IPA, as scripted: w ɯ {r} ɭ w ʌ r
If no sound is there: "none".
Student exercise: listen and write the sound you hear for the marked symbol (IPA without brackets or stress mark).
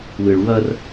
none